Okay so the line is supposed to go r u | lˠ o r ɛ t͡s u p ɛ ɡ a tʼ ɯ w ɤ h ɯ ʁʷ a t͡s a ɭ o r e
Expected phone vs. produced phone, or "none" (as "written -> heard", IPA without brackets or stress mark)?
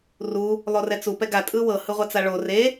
none